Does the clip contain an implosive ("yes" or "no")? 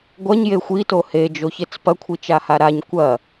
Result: no